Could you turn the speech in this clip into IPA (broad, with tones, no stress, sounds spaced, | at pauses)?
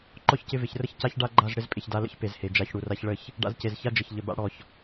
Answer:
ǃ ɔ˦ ç c ɪ˧ v ɪ˨ ç r ə˦ ç c a˦ ç ɖ a˦ ɡ͡ǃ a˦˨ z ɽ ɪ˦ z pʼ ɪ˨ ç d a˧ l ə̰˦ ç p e˨ z h e˨ d͡ʒ a˨˦ ç ɽ u˨ r a˧ ç ɭ ə˦˨ ç | ɖ a̰˧ z c e˨ z ç a˦ d͡ʒ ə˨ ç ʎ ə˨ b a̰˧ ɽ ɔ˨ ç